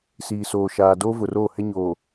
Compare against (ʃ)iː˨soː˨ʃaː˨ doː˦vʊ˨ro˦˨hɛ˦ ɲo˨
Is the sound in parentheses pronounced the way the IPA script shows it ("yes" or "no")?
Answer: no